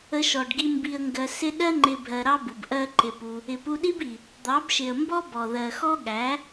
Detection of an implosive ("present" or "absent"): present